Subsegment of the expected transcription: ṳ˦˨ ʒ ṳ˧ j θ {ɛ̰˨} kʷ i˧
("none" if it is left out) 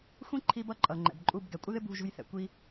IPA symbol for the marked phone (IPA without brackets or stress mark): ɛ̰˨